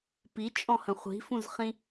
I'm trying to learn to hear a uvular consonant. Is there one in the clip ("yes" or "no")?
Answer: yes